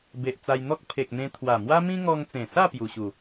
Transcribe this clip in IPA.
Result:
b e˨ ʔ t͡s a˧ j n̪ ɔ˦ k̚ pʰ e˨ k̚ n̪ ẽ˧ t̪ʰ w a˨˩ m w a˦ m ĩ˦ ŋ ɔ˧ ŋ t͡s ẽ˨˩ s a˥˧ p j u˨˩ ɕ u˨˩

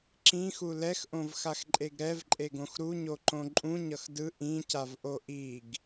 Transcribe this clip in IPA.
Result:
ǁ ĩ x u l ɛ x ʔ õ v x a x ǃʼ e ɡ ɾ ɛ v ǃʼ e ɡ õ x ɾ u ɲ o ǃ õ ǃʼ ũ ɲ ʌ x d ɯ ʔ ĩ c a v ʔ o ʔ i ɡ

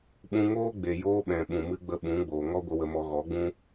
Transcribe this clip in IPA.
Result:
ɓ ũ˧ ŋ oː˦ ɡ͡b e˨ j oː˧ ɓ ɛ̃˨ ɓ ũ˨ m ɨ˧ ɡ͡b ə˧ ɓ ũ˨˦ ɡ͡b oː˨ ŋ ɔ˦ ɡʷ ə˧ w ə˧ m ɔ˧ ɣ ɔ˨˦ ɡ͡b ũ˦

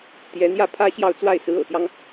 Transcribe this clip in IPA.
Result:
t̪ j ɛ˧˥ n̪ j ä˥˩ pʰ ä˥ ɕ j ɑ˥˧ ʊ̯ t͡s w a˥˩ ɪ̯ s ɹ̩˧˥ ɤ̰˨˩ t̪ j ɑ˦ ŋ

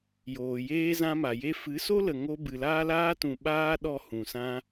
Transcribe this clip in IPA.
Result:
j oː˨ j eː˦ z ã˦ m a˨ j e˦ f ɨ˨˦ s o˦ l ə˨ ŋ o˦ b ɨ˨ l aː˦ l aː˦ t ũ˨ ɓ aː˦ ɗ ɔ˧ h ũ˨ s ã˦

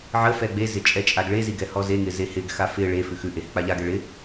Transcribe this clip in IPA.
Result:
ʕ ə f ɛ ɡ͡b e z ɪ t͡ʃʼ ɛ t͡ʃʼ a ɡ ɭ e z i ɡ ɛ h ɔ z e ŋ ɪ z e h ɪ ɡ x a f ɪ ɭ e f ʉ x ʉ ʔ e h ʉ k͡p a ʎ a ɡ ɛ ɭ ɪ

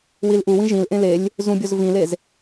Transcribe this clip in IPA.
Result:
w i l ʔ u w ĩ ʒ ĩ l ʔ ẽ l e lʲ | z ũ bʲ o z v ĩ l e z

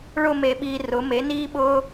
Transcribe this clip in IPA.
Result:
ɭ ʊ˦˨ m e˨ ɓ iː˨ r ʊ˩˥ m e˩˥ n iː˦ ɓ ʊː˦

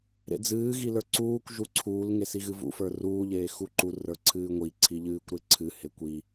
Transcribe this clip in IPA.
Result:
ɾ ḛ d͡z ɨː ɣ i l ə˞ ǀ uː kʷ ʒ u ǀʰ uː l ŋ e s i ɣ ɨ v ṵ f ə˞ r uː ʎ eː x u ǃ u r ə˞ ǀʰ ɨː ŋʷ i ǀʰ i ʎ ɨː kʷ ɾ e ǀʰ ɨ h e kʷ i

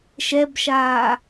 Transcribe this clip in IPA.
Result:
ʃ ɛ b ʃ aː

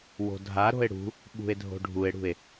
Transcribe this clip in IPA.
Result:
w o̤ dʱ a ɾ o̤ e̯ ɽ ṳ | ɓ ṳ e̯ dʱ o̤ ɖʱ u e̯ ɽ ṳ e̯

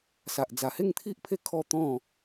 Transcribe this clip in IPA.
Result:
s a˨ ʔ d͡z a˨˩ h e˥˧ ŋ t̪ʰ i˦ ʔ pʰ e˦ kʰ ɔ˥˧ t̪ ɔ̃˥˧

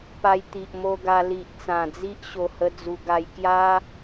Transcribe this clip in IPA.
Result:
p a˧ j t̪ i˨ ʔ m o˦ ɡ a˧ l i˨ ʔ t͡s ã˨˩ d͡z i˦ ʔ ɕ o˨˩ h ə˧ d͡z u˧ ɡ a˧ j k j a˦

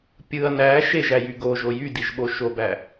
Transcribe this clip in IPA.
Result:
pʲ ɯ ɐ̯ n æ ʃ e ʒ æ j y ɡ o ʒ o j y d i ʒ ɓ o ʃ o b æ

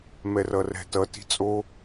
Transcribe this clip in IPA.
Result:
m ɛ r ʌ r ɛ̤ t ʌ t i̤ t͡sʼ o

